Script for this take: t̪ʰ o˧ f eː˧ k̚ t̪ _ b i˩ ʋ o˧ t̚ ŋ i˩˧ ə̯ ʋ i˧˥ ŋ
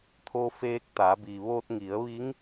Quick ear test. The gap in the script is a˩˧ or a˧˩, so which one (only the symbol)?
a˩˧